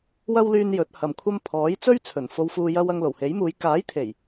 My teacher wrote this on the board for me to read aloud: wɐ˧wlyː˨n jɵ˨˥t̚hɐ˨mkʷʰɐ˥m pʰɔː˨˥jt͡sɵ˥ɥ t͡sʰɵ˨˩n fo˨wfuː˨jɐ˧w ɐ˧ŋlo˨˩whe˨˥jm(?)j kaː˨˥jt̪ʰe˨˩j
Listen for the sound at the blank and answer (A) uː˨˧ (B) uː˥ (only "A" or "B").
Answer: A